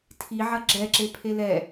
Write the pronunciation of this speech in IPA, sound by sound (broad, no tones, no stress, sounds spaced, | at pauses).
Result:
tʰ i ʕ ɐ ɡ͡ǁ ɛ ǁ e pʰ e l ɛ